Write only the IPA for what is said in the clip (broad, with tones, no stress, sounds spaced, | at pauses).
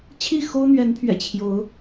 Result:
t͡ɕʰ i˥˨ x o˦ ʊ̯ n̪ ɥ ɛ˨˦ n pʰ ɥ ɛ̰˨˩ t͡ɕʰ j o˨˦ ʊ̯